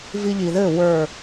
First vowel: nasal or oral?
oral